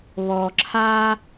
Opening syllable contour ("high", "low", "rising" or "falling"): low